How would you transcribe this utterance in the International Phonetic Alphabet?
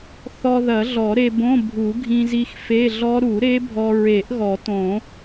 θɔ˧ðɐ˨˩˦ɮɔ˨˩˦ ɾe˧bõ˧˥˧ bʱu˨˩˦ɡʱĩ˧zi˧x fe˧˥˧ɮɔ˦˥ ɾu˨˩˦ ɾe˦˥bʱɔ˧ ɹe˨˩˦ʔɣɔ˨˩˦ tõ˨˩˦

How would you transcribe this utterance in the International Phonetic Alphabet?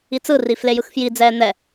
it͡sɯri flejɯxfjid͡zɛː n̪ɛ

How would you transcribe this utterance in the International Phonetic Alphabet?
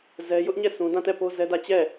zɛ˦ jʊ˦ʔɲɛ˦˨ sũ˦ dã˦˨tɛ˦˨po˦ zɛ˦dä˦˨ t͡ɕɛ˦˨

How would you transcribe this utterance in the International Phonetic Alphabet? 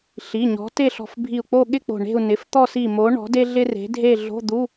ɬi˩˧˩ɲɔ̤˨˥ te˥˧ɬɔ̤˧˩fbʱi˧˩u̯k͡po˥˧ ɠɪ˥˧ k͡po̤˧˩ɳe̤˥˧u̯ nɪ˩˧˩ft̪ɔ˥˧si˧˩mo˨˥ ɳɔ̤˨˥de˥ɮɪ˥ re̤˨˥dʱe˥˧ ɮo̤˧˥˧d̪u˧˥˧

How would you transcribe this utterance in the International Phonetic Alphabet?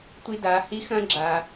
tʷi˧daː˩˧hi˧˥ xɐ̃ː˥ɡ͡ǁaː˩

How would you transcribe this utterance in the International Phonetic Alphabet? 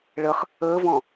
ɭəχ | əːvɔ̃

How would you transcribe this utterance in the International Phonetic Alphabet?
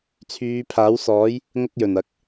t͡sʰyː˨˧pʰaː˨˥wsɔː˨˥j | ŋɐ˥k̚jɵ˨˩nɐ˨˥k̚

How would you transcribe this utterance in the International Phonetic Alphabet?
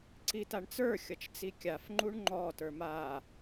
ǀitaɳt͡sə˞ xʲʌt͡ʃt͡sikʲaf ŋ͡ǃuɳŋ͡ǃɔ tə˞maː

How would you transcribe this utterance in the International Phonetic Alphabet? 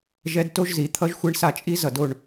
ʒɛ˦dto˦ʒ zi˨t̪ʰʌ˦ʒxʷe˦ɳ sa˦˨t͡ʃʼi˦ zʌ˨do˨ɳ

